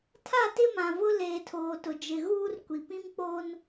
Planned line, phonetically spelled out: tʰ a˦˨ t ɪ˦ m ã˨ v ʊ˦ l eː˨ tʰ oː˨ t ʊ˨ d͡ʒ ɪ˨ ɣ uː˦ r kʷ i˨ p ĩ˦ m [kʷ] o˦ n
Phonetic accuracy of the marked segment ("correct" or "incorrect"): incorrect